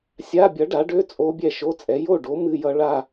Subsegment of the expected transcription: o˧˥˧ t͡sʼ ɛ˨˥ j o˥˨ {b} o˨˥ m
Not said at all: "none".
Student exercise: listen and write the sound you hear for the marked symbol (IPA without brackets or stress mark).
ɖ